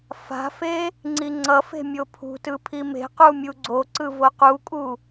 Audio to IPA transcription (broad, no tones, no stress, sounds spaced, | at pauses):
f a̤ f e | ŋ͡ǀ i ŋ͡ǀ ʌ f e̤ mʲ o pʰ ṳ t ɯ pʰ i m e̤ q u mʲ u ɡ͡ǀ o ǀ ɯ v o q u kʼ u